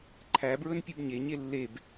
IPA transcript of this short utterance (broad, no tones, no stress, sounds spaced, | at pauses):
ǃʰ æ b ɹ ɵ n pʲ ʉ b ɲ e ɲ e lː e b